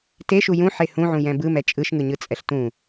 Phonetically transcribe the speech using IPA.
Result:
t e ʃ u j ũ ħ e h ũ ʕ ũ j ɛ̃ b ɯ m ɛ t͡ʃʼ ɯ ʃ ŋ ɯ ɲ ɯ t͡sʼ ɛ ɬ t ũ

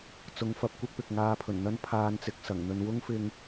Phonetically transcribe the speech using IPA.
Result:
t͡s ʊ˨˥ ŋ f ɐ˨˥ p̚ kʷ ɪ˥ k̚ p ɪ˨ k̚ ŋ aː˧ pʰ ɵ˨˩ n n̪ ɐ˥ n pʰ aː˧ n t͡s ɪ˨˥ k̚ s ɐ˨˩ ŋ n̪ ɵ˧ n w ʊ˥ ŋ f ɪ˧ ŋ

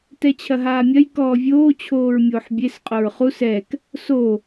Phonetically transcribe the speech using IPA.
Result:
t ɛ t͡ɕʰ ɐ ɦ aː mʲ ɐ j k ɔː vʲ oː t͡ɕʰ oː ɹ mʲ oː ħ bʲ e s qʼ o ɹ χ u s ɛ k | s o

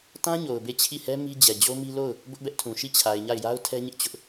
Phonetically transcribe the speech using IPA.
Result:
t ã˦ ɲ o˨ ʊ̯ b e˦˨ t͡ɕʰ i˦˨ h ɛ˦ m i˦ d͡ʑ ɛ˨ d͡ʑ o˦ m i˦ l o˦˨ ʊ̯ | b ʊ˦ ʔ b ɛ˦ ʔ tʰ ũ˨ ʃ i˦˨ t͡ɕʰ a˨ ɪ̯ ɲ a˦˨ ɪ̯ j a˦ ʊ̯ tʰ ɛ˦ ɲ ɪ˦ ʔ t͡ɕ ʊ˦ ʔ

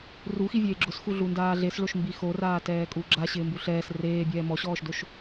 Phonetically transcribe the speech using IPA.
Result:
r u x i vʲ eː ɡ͡ǁ ʊ s x u ɮ u n d aː ɮ e s ɭ o ʃ m b i x o r aː t ɛː kʼ u ɡ͡ǁ a ɕ ɪː m b u ɬ ɛː s r eː bʲ ɛː m ɔ ɕ ɔː ʃ d o ʃ

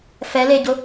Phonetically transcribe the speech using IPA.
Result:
f ɛ l e ɟ ʊ

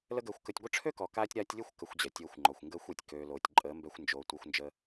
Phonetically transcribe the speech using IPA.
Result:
l ə˦ ɡ əː˧ xʷ k ə˧ tʲ ɡʷ ə˦ ʈ͡ʂʰ ø˦ k ɔ˨ k aː˧ tʲ ɾ a˧ tʲ lʲ ə˦˨ xʷ k ə˧ xʷ d͡ʑ ɛ˨ tʲ oː˧ xʷ ŋ͡ǃ ɔ˨ xʷ ŋ ɡ əː˦ xʷ ɛ˨ tʲ k øː˨ l oː˨ tʲ ǃʼ əː˨˦ m b ɛ˧ xʷ n d͡ʒ oː˨ tʷ œ˦ xʷ n d͡ʒ ə˦

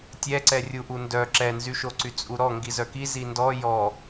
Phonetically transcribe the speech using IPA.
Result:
tʲ ɛ ǀ ɛ rʲ u ʔ u n d œ ǁ ɛ n z y ʃ o ǀ y t͡sʼ u ɾ ɔ ŋ ɡ i z œ k i z i n d ɔ j ɔ

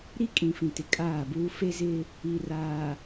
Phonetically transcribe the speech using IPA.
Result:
ɾ i˦ kʼ ĩ˨ f ĩ˨ t ɪ˨ kʼ aː˦˨ b uː˦ f e˦ z ɪ˦ | i˨ r aː˨

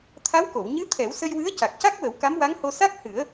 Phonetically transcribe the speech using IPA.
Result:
t̪ʰ a˧˥ w k o˨˩˨ w ɲ ɨ˧˥ t̪ʰ ɛ˨˩˦ w s ə˧ j w ɨ˧˥ ə̯ c a˨˩ k̚ c a˦˥ k̚ w ə˨˩˦ w k a˧˥ m w a˧˥ ŋ h o˧ s a˦˥ k̚ h ɨ˨˩˦ ə̯

